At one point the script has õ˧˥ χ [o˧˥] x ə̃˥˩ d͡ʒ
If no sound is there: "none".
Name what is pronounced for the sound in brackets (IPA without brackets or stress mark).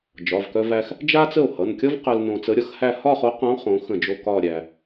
õ˧˥